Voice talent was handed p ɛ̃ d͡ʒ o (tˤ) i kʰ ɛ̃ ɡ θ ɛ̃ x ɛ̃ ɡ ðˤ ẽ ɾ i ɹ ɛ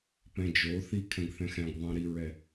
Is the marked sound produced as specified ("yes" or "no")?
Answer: no